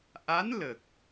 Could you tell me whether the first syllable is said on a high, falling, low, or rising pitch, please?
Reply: rising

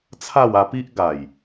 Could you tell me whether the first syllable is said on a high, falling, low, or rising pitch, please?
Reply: falling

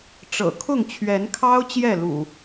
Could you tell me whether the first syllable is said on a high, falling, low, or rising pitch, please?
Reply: low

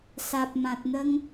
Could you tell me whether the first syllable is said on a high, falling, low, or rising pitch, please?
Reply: low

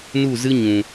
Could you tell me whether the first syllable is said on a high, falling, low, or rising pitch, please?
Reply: falling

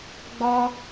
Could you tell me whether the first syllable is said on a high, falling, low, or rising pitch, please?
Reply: high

